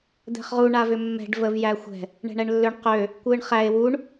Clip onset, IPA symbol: d̪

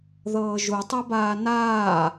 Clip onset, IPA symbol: ð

